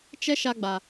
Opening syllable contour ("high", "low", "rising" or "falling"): high